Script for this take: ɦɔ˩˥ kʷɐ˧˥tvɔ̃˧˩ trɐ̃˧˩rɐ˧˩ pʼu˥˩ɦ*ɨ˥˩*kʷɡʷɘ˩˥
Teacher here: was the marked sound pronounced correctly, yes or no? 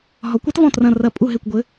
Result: no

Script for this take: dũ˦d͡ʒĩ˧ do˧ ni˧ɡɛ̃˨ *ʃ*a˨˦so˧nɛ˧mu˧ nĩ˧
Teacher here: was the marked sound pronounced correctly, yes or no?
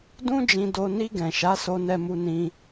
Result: yes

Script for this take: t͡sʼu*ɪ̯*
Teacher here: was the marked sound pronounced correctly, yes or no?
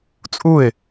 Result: yes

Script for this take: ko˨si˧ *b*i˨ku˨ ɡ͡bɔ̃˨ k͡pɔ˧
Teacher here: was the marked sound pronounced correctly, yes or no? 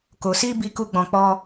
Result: yes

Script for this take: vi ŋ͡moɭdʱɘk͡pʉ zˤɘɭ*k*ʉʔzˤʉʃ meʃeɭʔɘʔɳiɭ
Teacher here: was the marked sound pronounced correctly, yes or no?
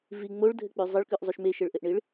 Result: yes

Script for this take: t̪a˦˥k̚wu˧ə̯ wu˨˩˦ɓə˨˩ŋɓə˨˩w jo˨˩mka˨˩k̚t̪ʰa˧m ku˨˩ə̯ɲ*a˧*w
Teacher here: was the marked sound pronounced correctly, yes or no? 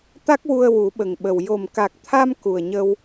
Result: no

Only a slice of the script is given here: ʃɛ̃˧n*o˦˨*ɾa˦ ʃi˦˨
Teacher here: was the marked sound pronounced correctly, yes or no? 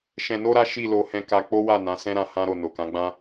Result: no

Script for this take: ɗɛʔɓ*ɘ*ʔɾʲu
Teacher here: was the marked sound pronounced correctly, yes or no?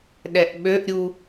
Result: no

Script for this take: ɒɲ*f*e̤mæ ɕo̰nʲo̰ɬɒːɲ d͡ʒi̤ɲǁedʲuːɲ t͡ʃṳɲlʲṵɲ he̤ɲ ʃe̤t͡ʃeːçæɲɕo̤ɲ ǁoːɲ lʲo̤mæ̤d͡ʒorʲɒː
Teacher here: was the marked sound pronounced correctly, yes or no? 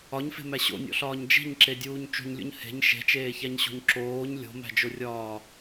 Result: yes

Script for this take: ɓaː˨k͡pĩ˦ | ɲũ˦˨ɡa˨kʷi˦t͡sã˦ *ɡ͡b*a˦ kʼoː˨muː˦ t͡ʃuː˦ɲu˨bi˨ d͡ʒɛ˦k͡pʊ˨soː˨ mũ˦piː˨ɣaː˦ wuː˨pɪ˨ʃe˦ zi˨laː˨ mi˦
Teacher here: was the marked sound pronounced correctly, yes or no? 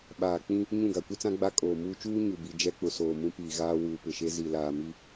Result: yes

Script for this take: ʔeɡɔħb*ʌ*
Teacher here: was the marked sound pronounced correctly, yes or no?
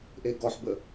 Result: no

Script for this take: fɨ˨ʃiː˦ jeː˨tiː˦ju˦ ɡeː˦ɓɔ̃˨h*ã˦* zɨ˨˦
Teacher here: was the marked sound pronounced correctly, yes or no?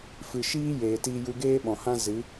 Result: yes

